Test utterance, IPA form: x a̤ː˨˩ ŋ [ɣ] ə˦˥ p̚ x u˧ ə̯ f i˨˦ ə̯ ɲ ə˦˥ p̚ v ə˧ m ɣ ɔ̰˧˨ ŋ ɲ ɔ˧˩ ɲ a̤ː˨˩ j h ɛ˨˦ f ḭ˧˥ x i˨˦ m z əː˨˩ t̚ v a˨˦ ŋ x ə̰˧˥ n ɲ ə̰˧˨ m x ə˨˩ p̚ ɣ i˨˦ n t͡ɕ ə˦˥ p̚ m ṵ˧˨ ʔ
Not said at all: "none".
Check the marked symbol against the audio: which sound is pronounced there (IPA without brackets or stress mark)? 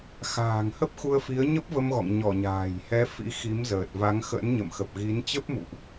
h